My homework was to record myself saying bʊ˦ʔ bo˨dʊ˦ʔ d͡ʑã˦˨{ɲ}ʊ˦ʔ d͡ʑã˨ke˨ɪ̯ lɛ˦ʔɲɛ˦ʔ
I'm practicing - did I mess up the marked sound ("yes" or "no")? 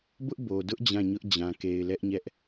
no